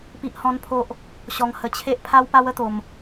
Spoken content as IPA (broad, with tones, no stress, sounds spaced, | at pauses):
p i˦ ʔ h ɔ̃˦ n pʰ o˦ ʔ | ɕ ɔ˧ ŋ h ə˧ t͡ɕʰ e˦ ʔ pʰ a˦ w p a˦ w ə˦ t̪ o˧ m